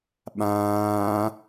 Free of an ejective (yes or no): yes